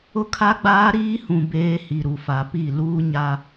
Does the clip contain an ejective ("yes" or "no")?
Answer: no